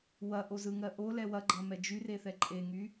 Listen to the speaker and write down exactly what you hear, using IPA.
w ɐ ʔ o z ɯ ŋ ɜ ʔ o l ɛ w ɐ ɡ͡ǃ ɐ m ɛ d͡ʒ y r e θ ɛ ǃʼ e ŋ y

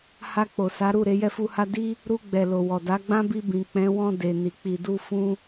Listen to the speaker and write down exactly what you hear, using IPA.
h a˧ k͡p o˨ s a˨˦ ɾ u˦˨ ɾ e˨˦ j ɛ˦˨ f u˧ h a˦ d i˦ | ɾ u˧ ɡ͡b ɛ˨ l o˨ w ɔ˨ d a˨˦ ɡ͡b ã˦ b i˧ b ĩ˨ k͡p ɛ̃˨˦ w ɔ̃˧ d e˨ n i˨ k͡p i˨ d u˧ f ũ˧

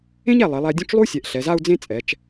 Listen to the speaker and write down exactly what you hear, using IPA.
ẽ˥ ɲ æ˧˩ lˠ e˩˧ lˠ æ˧ dʲ ũ˥˧ t͡ʃ lˠ u˥ sʲ ɛ˩˧ ʔ ɬ ɛ˩˧ z a˥˧ u̯ d͡z ẽ˥˧ t͡sʼ ɛ˩˧ t͡ʃ

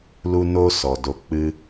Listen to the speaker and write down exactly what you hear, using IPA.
l u˧ n o˧ s ɔ˨ d o˧ k͡p ɨ˧

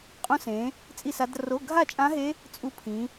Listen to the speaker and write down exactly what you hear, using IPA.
qʼ õ˦˥ s ẽ˨˦ | t͡sʼ i˥˧ s a˦˥ d r o˧˥˧ ɡʱ a˥˧ t͡ʃʼ ã˦˥ ɦ e˦˥ | t͡sʼ u˦˥ pʰ ĩ˨˦

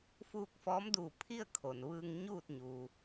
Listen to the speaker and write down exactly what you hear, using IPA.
f uː˥˨ k̚ f ɔː˧˥ m d uː˧˩ pʰ i˥˨ ə̯ kʰ o˩ n ʋ ɯː˧ ŋ ɲ uː˥˨ t̚ ɲ uː˩

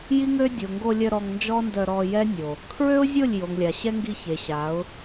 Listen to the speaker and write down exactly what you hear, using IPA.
j i˦ ŋ ø˦ dʲ o˨ ŋ ɡ o˧ lʲ œ˧ ɾ ɔ˧ ŋ n d͡ʒ ɔ˦ n d œ˧ ɾ ɔ˧ j ɛ˦ nʲ o˨ | kʰ ɹ ø˦ ʊ̯ zʲ o˦˨ lʲ j o˨ ŋ lʲ a˨ ɕ ɛ˦ ŋ ɡ i˧ ç e˨ ɕ a˨˦ ʊ̯

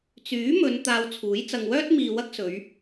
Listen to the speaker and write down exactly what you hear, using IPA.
t͡s yː˨˥ m ɵ˨˧ n t̪ aː˧ w t͡sʰ uː˨˥ j t͡s ɐ˨ ŋ w œː˥ t̚ m iː˨ w ɐ˥ k̚ s ɵ˨˧ ɥ

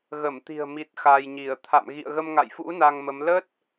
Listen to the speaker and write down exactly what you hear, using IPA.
ɣ ə˧˩ m t̪ i̤˨˩ ə̯ m i˨˩ t̚ x a˧ j ɲ i˧˩ ə̯ t̪ʰ a̰˧˨ m ɣ ḭ˧˨ ə̯ ɣ ə˧ m ŋ a̰˧˨ j f ṵ˧˥ n a˧ ŋ m ə˨˦ m l ə˦˥ t̚

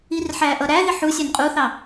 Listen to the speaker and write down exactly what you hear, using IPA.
i r ħ æ ʔ ʌ ɾ æ ð ɪ ħ u sʲ ɑ n qʼ u θ ɑ

